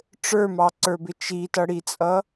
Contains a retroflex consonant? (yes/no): yes